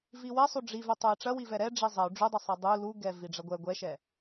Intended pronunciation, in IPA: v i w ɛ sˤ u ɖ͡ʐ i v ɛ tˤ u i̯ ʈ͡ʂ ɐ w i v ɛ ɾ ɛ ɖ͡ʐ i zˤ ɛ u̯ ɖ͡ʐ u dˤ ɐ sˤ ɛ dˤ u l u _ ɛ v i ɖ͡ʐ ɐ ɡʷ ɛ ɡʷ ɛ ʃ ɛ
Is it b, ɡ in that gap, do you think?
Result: ɡ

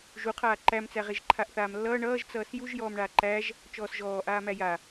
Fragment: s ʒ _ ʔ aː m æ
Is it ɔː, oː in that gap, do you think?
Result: ɔː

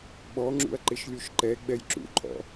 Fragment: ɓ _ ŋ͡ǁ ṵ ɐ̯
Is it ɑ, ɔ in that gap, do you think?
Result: ɔ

